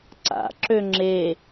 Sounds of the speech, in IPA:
ǀa̰ǁø ŋ͡ǁe

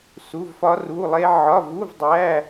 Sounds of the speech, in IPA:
su˧˥˧vfɒ˦˥ru˧˥˧lˠe˦˥ ʕɒ˧˥˧ vu˧˥˧v dˤæ˧˥˧

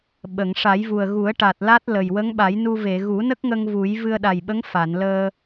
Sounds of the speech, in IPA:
ɓə˨˩˨ŋ ʂa˨˩˦jvu˨˩ə̯ ɣu˨˩˦ə̯ ʈa˨˩t̚la˦˥t̚ lə˨˩j wə˧˥ŋɓa˨˩˦jnu˧ ve˨˩˨ ɣu˨˩˦nə˦˥k̚ŋə˧ŋ vu˨˩˦j vɨ˧ə̯ɗa˨˩jɓə˧˥ŋ fa˨˩˨nləː˧

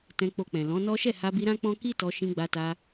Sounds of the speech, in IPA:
tɛ̃˧ k͡po˧k͡pɛ̃˨ lɔ̃˨˦nɔ˦ ʃɛ˦˨ha˧bi˧ ɾã˦k͡pɔ̃˦ ki˦tɔ˧ ʃĩ˧ɡ͡ba˧ta˧

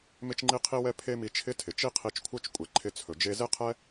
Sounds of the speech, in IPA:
mɪ˥t͡ʃŋ͡ǃi˥qʰi˥wɛ˥ pʰe˥mi˧t͡ʃʰɪ˥tʰɪ˩ t͡ʃi˥qʰi˧t͡ʃkʷʰœ˥t͡ʃ kʷʼɛ˩ǃʰɪ˧ t͡sʰɵ˩d͡ʒe˧ ze˥qʰɛ˥

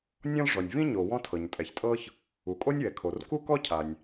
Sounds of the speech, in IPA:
nʲɔ̃˥l ʐɔ˩nʲ vĩ˥ɲo˩ wɔ̃˥tʰɤ˩ɲtʼɛ˩çtʼɤ˥ç | u˩kʼo˥nʲwɛ˩kʰo˩r ku˥kɔ˥ cʰa˩nʲ

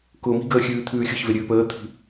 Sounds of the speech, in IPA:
kʊːmi̤ɡəː xʲʉːt̪ʰʉːxʲʊçve ɾʲʉːpəːt̪ʰi̤

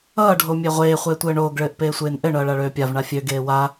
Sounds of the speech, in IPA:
ʌː ɖʱomʲeʁʷeː χʷeːtʷɘːɳoːɡ ɭɘːʔpeːsʷeːnʔɘ ɳʌːɭaɭøːpʲav ɳafʲø ɡeːwa

